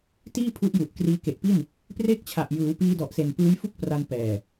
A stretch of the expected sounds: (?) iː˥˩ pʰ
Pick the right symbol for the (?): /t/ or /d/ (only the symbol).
t